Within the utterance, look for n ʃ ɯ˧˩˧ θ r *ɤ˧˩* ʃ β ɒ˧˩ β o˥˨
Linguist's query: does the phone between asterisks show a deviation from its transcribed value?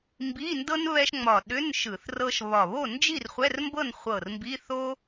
yes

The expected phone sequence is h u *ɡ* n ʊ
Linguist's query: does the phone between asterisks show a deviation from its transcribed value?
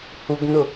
no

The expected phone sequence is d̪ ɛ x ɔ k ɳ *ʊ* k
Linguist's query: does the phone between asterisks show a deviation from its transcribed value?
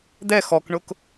no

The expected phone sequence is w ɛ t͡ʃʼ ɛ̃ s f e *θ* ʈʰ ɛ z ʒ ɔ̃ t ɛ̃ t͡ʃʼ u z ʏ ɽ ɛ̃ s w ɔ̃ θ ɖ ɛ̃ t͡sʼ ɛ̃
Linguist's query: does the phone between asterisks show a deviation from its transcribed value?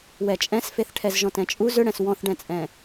no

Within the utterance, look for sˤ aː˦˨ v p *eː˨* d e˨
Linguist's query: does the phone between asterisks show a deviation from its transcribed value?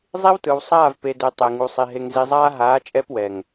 yes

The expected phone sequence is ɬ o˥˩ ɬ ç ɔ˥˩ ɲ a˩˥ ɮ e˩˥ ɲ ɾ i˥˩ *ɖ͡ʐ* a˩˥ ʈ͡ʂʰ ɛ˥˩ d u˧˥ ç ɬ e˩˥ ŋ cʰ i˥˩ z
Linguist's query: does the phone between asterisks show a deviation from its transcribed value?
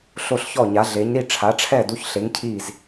yes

